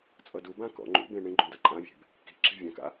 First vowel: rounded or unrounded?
unrounded